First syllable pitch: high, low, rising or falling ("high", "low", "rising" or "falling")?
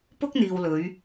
high